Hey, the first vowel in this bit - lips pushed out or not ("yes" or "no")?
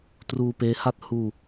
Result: yes